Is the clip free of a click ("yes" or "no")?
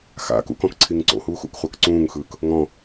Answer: no